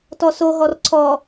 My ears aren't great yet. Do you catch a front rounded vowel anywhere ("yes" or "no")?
no